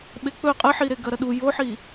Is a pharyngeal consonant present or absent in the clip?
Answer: present